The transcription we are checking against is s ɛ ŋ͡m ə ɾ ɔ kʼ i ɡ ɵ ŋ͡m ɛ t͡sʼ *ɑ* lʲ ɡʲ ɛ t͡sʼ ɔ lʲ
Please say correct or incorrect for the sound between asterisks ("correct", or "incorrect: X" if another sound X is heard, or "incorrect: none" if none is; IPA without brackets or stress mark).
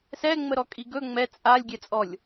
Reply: incorrect: a